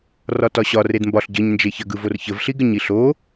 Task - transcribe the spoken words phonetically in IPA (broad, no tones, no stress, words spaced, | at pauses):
rɒtɒɕɒ redmbɒɬ ɟəɲ nd͡ʒeçə ɡɯvorçəv ɬiɡəɲiɬo